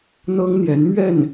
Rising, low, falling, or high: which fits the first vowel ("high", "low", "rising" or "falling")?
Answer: high